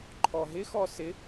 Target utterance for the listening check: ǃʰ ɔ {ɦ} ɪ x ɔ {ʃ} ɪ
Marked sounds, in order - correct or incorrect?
correct, incorrect

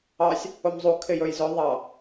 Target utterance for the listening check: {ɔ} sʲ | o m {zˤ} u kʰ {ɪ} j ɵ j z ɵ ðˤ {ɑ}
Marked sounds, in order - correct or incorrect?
incorrect, correct, correct, correct

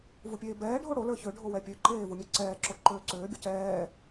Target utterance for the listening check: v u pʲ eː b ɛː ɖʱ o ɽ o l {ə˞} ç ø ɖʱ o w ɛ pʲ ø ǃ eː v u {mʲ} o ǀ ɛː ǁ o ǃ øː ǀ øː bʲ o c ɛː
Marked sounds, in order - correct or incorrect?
correct, correct

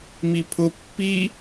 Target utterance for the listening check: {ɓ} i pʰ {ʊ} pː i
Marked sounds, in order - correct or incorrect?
incorrect, correct

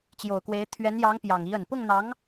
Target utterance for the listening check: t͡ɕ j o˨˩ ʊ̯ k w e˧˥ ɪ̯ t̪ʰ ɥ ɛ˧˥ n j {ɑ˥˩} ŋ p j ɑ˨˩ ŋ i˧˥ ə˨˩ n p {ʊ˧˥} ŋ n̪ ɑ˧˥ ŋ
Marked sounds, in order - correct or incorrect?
incorrect, incorrect

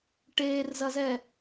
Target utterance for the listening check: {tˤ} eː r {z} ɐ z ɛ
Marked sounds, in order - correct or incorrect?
incorrect, correct

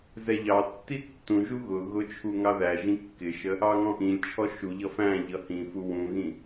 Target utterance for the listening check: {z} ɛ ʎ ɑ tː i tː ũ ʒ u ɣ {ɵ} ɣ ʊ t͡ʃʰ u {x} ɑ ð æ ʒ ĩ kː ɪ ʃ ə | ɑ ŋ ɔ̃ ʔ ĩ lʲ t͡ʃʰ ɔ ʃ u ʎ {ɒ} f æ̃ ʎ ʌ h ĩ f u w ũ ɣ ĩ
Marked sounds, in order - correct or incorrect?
correct, incorrect, incorrect, incorrect

